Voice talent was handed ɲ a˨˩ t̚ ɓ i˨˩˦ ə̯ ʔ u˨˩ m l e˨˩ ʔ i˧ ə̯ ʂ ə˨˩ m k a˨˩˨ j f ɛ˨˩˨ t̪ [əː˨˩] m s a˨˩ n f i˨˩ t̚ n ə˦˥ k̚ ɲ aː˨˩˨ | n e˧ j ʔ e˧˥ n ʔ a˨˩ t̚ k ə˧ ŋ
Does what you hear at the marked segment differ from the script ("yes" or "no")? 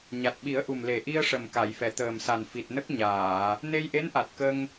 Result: no